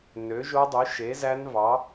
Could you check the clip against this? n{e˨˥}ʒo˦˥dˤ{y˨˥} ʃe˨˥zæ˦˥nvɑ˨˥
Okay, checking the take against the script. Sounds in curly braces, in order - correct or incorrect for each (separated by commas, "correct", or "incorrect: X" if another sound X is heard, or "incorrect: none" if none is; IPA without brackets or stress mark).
incorrect: ø˨˥, correct